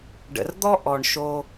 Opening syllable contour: low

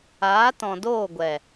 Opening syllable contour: rising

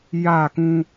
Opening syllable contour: falling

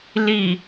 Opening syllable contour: low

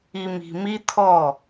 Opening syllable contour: low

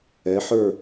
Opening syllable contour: rising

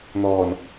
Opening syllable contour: low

